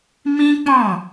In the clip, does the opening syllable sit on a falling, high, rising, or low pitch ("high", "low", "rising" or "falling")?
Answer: high